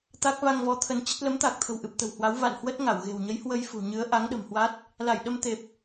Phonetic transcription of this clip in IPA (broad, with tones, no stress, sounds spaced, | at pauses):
t̪ a˦˥ k̚ v a˧ ŋ v ɔ˨˦ t̪ʰ ə˧ n t͡ɕ ə˦˥ t̚ l ə˨˦ m t̪ aː˨˩ k̚ t̪ʰ ə̤˨˩ w ʔ ɨ˨˩ p̚ t̪ ə̤˨˩ w h w a˨˦ w v a̰˧˨ n h w ə˦˥ t̚ ŋ a˧˩ w ɣ e̤˨˩ w ɲ ə˨˦ j h w ə˧ j f ṳ˨˩ ɲ ɨ˨˦ ə̯ ʔ a˨˦ ŋ ɗ ə̤˨˩ m h w a˦˥ t̚ | l a˧˩ j ɗ ə˧ m t̪ e˨˩ p̚